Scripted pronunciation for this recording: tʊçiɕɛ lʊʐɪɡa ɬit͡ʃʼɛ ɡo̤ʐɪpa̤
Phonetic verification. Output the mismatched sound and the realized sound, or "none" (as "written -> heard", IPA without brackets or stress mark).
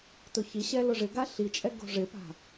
none